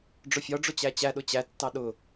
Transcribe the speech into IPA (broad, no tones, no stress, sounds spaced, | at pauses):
ɖ͡ʐ ʊ fʲ ɒ ɖ͡ʐ ʊ t͡ɕ æ t͡ɕ æ ɗ ʊ t͡ɕ æ tː ɑ ɗ ʊ